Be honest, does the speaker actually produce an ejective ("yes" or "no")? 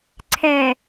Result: no